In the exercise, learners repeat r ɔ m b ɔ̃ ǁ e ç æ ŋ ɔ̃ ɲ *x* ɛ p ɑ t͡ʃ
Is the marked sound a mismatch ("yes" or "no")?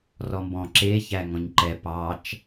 yes